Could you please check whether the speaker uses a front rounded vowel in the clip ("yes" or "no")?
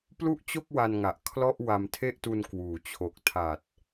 no